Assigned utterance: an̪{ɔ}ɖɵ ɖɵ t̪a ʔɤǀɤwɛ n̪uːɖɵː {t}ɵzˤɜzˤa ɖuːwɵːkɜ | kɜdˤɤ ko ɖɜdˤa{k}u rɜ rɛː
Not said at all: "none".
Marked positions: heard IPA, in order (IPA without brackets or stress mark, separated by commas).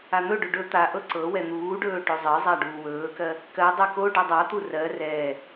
ɵ, ʈ, t̪